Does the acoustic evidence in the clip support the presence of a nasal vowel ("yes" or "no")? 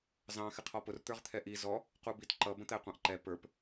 yes